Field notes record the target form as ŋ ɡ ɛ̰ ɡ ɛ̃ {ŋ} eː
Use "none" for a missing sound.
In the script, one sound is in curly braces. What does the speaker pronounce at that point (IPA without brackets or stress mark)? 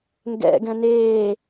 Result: n